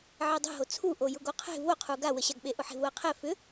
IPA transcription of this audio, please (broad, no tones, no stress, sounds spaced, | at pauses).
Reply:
ʕ e dˤ e̤ ɦ o t͡sʰ u ʔ o j ʊ ɡ o qʰ e̤ v o qʰ u ɡ a w ə ɕ a ɡ ɓ e ʔ ʊ ħ e̤ v ʊ ə̯ qʰ ɛ f ʏ